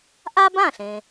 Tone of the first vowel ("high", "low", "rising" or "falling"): high